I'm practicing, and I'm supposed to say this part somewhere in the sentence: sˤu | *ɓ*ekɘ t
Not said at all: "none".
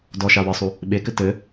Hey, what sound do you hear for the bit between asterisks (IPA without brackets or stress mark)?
ɓ